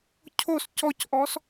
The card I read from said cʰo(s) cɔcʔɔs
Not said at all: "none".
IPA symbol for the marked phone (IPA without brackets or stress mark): s